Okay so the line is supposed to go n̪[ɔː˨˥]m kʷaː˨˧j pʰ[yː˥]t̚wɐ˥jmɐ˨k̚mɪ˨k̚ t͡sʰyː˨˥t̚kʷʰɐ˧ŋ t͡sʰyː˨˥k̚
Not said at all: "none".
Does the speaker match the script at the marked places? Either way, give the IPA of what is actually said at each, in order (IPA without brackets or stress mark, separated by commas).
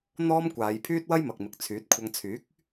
ɔː˥, yː˥